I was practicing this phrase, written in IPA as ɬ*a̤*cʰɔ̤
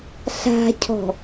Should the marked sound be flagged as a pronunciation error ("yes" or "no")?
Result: no